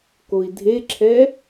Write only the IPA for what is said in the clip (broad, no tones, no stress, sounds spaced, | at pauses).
k o i̯ dʱ e ǁʰ ɛ